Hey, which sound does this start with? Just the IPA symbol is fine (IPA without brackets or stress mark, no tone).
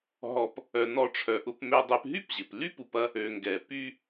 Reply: ɦ